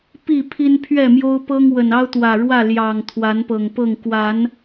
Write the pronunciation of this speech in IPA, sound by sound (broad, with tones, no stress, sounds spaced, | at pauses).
p i˥˨ pʰ i˦ n pʰ ɥ ɛ˥˨ m j o˦ ʊ̯ p ɤ˦ ŋ w ə˨˩ n ɑ˦ ʊ̯ t̪ w ä˨˩ ɻ w ä˥˨ l j ɑ˨˩ ŋ t̪ʰ w a˨˦ n p ɤ˨˩ ŋ p ɤ˥˨ ŋ k w a˨˦ n